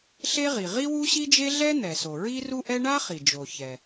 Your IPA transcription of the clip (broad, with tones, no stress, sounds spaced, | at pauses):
ɬ e˥ ʁ i˩ ʁ i˥ w u˥ ɕ i˥ d͡ʒ e˥ ɮ ɛ˥ n̪ ɛ˩ s o˩ ɹ i˥ r u˥ ʔ ɛ˥ ɳ a˥ χ i˩ d͡ʒ o˩ ç ɛ˩